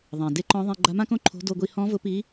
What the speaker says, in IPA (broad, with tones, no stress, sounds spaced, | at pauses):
ðˤ ã˩ d e˧˥ ǃ ɔ̃˧˥ ðˤ ĩ˧ ɡ͡ǃ a˧˥ m ã˥ k õ˥ ǃʰ o̤˧˥ d o˧ ɡʷ i˧ h ɔ̃˧˥ v ʊ˧˥ p i˧˥